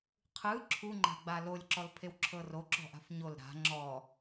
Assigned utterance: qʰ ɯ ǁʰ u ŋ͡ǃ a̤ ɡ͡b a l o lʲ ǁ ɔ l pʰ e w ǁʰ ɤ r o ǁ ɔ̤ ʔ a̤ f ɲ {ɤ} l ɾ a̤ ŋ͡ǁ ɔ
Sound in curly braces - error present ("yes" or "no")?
yes